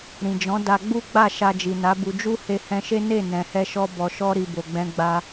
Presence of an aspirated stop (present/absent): absent